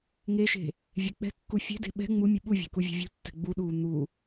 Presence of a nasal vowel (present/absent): absent